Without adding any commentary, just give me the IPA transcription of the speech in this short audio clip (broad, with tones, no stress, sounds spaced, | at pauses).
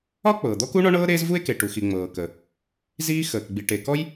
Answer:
ɒ˥ k͡p ɤː˩ d̪ ɔ˥ k u˥ ɳ ɔ˥ ɳ ɤː˥ ɾ eː˥ z v u˥ e̯ k e˩ ʈ u˩ x i˩ ŋ͡m ɤː˩ k ə˩ | z iː˥ x əː˩ k ɡ͡b i˩ ʈ e˩ k ɔ˥ j